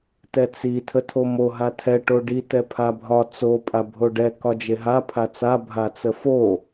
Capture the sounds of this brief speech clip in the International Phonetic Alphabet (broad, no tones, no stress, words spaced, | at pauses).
tɛt͡si tʰətʰomo ɦatʰɛ ʈoɖi tɛpʰabʱɒ t͡so pʼabʱoɖɛ kɒd͡ʒeɦa pʰat͡sa bʱat͡səfo